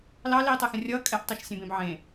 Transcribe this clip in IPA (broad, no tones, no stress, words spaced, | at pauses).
lɑ liːtˤɛxə̃rʲʌː kʼɛʔtˤeʃ sʲẽbẽbʕẽ